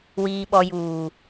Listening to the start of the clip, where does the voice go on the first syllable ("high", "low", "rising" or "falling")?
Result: low